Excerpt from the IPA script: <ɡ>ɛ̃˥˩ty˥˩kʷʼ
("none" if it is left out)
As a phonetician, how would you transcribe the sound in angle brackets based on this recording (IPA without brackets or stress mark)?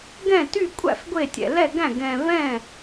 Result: ɡ